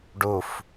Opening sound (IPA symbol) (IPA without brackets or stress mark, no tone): ɖ